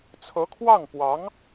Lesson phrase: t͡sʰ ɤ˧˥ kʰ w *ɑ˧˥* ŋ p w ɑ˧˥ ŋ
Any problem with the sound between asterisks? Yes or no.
yes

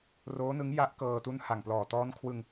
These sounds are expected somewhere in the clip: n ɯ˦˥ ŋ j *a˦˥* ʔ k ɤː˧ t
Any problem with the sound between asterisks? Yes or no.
no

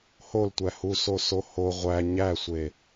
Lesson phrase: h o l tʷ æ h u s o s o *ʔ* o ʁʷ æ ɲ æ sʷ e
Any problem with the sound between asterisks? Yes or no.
yes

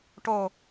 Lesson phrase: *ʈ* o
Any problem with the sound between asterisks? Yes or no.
no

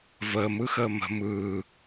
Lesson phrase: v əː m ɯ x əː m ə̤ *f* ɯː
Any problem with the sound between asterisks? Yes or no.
yes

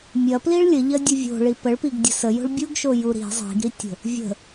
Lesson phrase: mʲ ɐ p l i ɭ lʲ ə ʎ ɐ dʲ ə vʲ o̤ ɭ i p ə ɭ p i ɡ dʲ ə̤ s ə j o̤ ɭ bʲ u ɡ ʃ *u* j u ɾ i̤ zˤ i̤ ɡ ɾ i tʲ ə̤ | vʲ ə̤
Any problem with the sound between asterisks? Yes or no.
yes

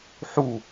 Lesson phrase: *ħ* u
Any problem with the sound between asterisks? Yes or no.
no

